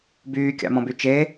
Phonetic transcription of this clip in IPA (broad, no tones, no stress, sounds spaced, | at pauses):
b yː kʲ ɑ̰ m ɔ̃ b y t͡ʃ e